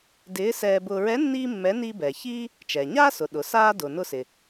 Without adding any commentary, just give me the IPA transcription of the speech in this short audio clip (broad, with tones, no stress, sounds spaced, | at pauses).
d ɪː˧˥ s ɛː˧ b ʊ˧ ɹ ɛ˧˥ nː iː˥ mː ɛ˧˥ n i˧ b ɛ˩ ç iː˥ | t͡ʃ ɛ˩ ɲ aː˥ s ʊ˩˧ ɗ ʊ˩˧ s aː˥ d ʊː˩ n ʊ˧ s ɪ˩